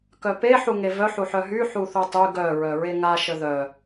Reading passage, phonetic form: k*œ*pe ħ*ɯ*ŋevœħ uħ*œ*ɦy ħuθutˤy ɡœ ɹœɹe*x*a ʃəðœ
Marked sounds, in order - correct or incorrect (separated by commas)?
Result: correct, incorrect, correct, incorrect